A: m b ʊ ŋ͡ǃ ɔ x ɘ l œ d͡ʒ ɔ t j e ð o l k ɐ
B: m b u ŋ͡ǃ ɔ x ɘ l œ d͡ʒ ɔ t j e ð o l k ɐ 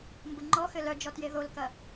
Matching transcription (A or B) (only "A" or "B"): A